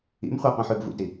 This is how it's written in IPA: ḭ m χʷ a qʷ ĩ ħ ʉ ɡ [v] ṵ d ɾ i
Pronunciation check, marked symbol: correct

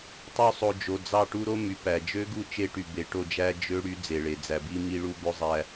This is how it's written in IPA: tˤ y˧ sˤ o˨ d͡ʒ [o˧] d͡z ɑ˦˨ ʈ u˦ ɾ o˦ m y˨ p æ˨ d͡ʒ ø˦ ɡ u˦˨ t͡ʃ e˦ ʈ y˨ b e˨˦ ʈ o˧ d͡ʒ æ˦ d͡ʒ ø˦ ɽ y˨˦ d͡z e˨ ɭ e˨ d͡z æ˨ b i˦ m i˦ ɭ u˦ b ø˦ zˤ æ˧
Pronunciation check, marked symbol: incorrect: o˨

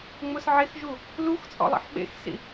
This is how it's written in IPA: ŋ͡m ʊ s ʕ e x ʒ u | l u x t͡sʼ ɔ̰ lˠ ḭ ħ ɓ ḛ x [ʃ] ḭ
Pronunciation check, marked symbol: incorrect: s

